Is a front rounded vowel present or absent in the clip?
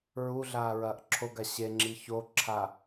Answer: absent